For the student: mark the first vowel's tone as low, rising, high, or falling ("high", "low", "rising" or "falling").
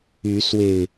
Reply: rising